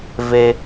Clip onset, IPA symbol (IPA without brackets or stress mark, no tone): v